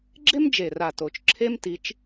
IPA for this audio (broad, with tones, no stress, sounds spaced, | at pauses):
ɡ͡ǁ e˥ m d͡ʒ e˨˩ r a˨˩ t o˨˩ t͡ʃ ǁʰ e˥ m t i˨˦ t͡ʃ